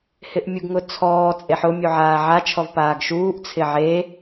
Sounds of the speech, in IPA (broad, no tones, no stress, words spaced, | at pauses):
hɪʔmʲuɡŋʊt͡sʰɔː t͡sʼeħʊ mʲuʕaːʕa t͡ʃʰɔvpaːɡʃuːʔ t͡sʰɪʕe